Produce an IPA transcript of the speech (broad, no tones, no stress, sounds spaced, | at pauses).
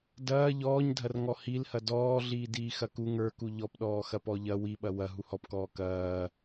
d ɐː ʎ ɔː ɲ dʱ ɐ r ŋ ɔ h i l h ɐ d ɔː ɮ iː d iː x ɐ k u ŋ ə˞ k u ʎ ɔ p ɗ ɔː x ɐ p ɔ ʎ ɐ w i ɓ ɐ w ɐ ɦ u h ɔ p k ɔː k ɐː